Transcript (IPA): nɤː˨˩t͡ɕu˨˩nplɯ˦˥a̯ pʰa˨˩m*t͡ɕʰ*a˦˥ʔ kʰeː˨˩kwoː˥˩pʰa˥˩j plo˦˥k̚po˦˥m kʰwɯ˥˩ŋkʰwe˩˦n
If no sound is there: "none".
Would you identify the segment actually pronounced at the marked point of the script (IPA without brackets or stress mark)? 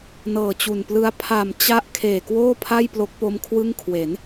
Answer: t͡ɕ